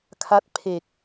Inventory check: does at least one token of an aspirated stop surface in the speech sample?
yes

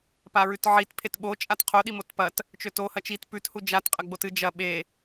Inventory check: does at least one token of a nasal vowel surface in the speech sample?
no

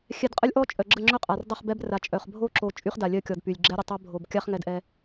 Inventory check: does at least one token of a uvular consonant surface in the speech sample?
yes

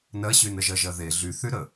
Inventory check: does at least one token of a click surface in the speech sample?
no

